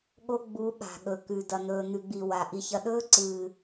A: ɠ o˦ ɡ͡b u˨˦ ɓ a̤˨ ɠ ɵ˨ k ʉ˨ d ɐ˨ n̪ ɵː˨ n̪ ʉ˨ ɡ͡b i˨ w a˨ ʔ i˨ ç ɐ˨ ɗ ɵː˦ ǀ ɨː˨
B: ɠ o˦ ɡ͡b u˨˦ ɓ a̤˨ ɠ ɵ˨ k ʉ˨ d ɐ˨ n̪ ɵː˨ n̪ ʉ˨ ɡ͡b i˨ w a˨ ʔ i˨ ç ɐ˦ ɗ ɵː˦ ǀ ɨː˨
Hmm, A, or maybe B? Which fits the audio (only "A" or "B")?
A